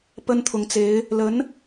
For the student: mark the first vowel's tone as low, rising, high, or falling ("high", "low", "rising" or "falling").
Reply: high